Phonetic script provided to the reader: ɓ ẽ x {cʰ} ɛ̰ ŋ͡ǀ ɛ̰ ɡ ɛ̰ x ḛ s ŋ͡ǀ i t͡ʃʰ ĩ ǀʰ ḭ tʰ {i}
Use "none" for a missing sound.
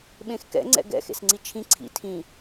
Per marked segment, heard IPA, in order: k, ĩ

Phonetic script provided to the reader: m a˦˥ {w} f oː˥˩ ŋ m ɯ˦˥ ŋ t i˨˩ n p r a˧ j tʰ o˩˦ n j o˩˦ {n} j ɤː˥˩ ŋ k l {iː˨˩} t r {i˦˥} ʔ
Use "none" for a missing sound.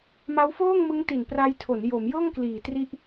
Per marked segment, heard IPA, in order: w, m, iː˨˩, i˦˥

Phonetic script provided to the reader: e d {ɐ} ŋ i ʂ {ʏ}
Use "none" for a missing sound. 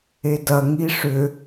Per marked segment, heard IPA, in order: ɐ, ʏ

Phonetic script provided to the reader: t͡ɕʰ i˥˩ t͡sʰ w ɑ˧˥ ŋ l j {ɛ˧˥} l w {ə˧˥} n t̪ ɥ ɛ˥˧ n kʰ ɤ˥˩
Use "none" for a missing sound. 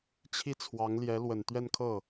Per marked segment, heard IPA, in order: ɛ˧˥, ə˨˩

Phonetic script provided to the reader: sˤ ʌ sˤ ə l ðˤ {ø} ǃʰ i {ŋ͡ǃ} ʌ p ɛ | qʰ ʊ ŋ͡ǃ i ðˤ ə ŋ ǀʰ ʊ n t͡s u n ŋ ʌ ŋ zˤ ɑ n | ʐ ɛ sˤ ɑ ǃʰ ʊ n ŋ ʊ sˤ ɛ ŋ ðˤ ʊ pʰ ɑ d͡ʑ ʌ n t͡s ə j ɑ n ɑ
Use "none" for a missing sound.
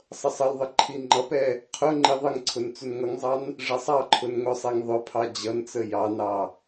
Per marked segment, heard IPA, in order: ə, ŋ͡ǃ

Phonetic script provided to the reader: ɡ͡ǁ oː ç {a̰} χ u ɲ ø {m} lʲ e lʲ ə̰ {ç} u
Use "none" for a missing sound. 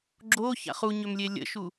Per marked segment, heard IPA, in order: a̰, m, ʃ

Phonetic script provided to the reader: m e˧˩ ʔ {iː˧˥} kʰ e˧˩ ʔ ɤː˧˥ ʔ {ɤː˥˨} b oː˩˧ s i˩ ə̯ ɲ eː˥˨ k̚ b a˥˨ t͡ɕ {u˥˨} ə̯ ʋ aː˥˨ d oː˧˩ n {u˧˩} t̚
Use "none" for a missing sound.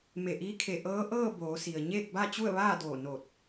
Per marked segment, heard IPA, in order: iː˧˥, ɤː˥˨, u˥˨, o˧˩

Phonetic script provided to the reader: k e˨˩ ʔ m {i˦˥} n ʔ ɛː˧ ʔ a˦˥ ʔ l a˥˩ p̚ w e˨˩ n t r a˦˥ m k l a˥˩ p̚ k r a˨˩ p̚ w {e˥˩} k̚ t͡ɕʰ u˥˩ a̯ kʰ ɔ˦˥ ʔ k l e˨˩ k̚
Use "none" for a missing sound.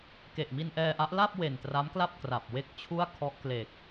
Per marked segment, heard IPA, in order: i˧, e˥˩

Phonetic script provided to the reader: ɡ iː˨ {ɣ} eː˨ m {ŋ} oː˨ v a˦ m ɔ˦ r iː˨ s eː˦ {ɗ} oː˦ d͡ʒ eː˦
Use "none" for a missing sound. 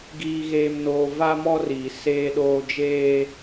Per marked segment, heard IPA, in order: ɣ, n, ɗ

